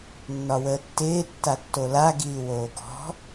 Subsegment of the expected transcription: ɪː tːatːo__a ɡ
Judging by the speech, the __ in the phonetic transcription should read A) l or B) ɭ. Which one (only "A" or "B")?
A